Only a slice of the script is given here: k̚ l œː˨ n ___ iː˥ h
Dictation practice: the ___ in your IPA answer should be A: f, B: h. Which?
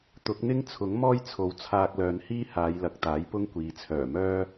B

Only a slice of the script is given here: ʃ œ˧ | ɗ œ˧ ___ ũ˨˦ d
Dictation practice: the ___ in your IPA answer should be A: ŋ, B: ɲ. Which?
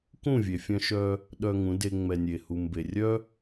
A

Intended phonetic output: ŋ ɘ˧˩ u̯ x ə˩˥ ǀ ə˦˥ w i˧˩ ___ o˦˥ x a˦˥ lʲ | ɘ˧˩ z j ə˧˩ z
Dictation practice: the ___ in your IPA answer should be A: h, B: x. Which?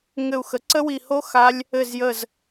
A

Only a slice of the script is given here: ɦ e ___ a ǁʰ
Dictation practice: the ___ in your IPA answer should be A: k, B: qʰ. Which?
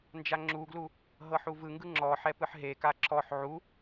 A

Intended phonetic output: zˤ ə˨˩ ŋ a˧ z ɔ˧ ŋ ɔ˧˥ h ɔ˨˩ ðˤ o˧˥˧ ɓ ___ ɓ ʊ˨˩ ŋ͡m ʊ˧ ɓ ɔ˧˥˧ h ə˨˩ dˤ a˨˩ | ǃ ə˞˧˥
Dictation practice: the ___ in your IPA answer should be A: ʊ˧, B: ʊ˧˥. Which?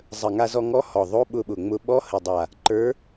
A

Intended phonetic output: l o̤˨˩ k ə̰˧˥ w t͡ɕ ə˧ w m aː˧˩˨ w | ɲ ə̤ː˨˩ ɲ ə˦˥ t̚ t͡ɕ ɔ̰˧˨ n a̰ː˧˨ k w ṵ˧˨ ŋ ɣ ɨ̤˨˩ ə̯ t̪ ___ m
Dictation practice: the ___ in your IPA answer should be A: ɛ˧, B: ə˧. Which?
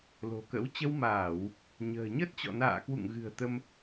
B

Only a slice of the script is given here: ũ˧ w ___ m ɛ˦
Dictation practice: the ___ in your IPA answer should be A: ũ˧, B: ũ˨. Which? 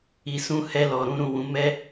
A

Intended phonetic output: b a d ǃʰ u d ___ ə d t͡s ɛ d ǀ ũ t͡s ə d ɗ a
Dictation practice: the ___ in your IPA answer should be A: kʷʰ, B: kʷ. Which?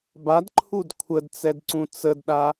A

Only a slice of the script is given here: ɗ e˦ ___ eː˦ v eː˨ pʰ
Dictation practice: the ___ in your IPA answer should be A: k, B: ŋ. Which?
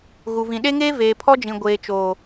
B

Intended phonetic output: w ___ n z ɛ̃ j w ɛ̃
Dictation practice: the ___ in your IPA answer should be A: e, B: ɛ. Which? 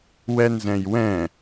B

